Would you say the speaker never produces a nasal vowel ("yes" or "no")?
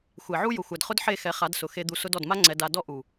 yes